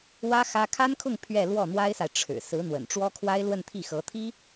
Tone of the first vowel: high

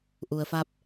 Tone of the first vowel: low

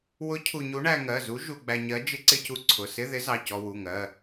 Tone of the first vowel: rising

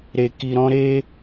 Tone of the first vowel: low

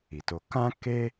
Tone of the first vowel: low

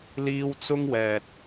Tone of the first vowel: high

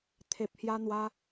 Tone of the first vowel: low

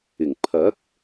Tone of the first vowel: low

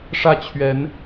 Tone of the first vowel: falling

